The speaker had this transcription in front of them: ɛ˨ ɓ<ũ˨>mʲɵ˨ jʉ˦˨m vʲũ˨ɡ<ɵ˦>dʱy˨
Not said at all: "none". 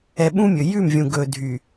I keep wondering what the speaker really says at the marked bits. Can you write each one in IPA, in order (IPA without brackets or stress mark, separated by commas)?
ũ˦, ɵ˨